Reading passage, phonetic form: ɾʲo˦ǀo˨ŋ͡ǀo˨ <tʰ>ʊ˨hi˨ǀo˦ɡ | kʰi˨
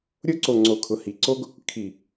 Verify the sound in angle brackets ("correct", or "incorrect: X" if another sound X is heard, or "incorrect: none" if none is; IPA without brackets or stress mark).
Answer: incorrect: kʰ